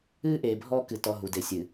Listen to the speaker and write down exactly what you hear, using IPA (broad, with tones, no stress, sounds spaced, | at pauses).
ɨː˦ ʔ eː˨ bʱ ɔː˦ k ɨ˨ t ɔ˦ ɦ u˨ d e˨ sʲ ɨ˨